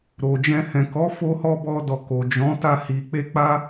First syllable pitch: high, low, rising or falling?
low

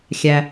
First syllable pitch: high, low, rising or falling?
low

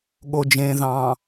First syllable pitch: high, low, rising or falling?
low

